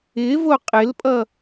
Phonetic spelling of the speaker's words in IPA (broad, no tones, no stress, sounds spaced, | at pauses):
ɪ v o qʼ ɪ l pʼ ʌ